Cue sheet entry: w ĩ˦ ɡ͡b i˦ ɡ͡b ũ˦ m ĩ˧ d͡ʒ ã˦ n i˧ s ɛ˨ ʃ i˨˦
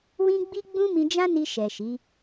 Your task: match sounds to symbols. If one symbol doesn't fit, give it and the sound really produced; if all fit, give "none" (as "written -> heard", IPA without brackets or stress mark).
s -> ʃ